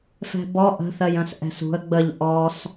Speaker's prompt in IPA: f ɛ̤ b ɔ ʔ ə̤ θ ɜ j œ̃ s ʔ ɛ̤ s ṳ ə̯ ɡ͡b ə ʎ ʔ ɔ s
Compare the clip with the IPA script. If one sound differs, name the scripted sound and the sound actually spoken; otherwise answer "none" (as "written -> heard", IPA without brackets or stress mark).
none